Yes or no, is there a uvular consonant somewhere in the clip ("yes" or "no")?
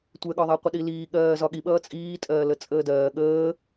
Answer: yes